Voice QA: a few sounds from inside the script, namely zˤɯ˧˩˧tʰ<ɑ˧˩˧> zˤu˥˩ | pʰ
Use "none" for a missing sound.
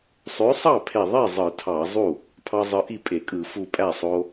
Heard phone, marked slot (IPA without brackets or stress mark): ɑ˧˩˧